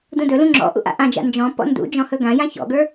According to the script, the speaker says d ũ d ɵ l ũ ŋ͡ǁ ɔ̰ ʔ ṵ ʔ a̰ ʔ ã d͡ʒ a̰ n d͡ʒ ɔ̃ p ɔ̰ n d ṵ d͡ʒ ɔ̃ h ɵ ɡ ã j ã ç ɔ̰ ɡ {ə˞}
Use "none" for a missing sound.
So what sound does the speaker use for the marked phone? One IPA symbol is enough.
ə˞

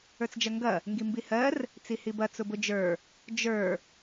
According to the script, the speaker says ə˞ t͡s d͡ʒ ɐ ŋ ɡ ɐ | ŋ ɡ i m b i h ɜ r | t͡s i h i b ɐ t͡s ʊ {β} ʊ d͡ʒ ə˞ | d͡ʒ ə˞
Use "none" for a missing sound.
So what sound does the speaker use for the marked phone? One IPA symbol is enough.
b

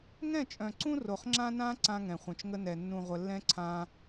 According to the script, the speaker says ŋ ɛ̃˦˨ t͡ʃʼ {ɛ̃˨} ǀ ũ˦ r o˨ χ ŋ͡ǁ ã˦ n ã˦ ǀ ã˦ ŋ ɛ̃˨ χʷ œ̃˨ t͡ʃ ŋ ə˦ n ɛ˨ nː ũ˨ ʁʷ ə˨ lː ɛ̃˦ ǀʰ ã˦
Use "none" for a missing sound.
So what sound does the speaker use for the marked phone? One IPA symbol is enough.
œ̃˨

